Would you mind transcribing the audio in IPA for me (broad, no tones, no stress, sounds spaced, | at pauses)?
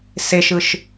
s e ʃ ɯ ʃ